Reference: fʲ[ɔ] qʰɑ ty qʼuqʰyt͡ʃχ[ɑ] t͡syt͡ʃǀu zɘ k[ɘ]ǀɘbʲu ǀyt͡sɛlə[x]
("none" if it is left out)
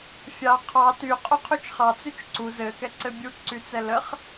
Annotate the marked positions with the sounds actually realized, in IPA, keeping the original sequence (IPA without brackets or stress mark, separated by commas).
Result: ɑ, ɑ, ɛ, χ